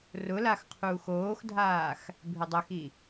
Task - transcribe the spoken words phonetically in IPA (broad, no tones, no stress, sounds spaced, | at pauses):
r ʊ l a x qʰ uː x oː x dʱ aː x | bʱ ɪ dˤ œ x i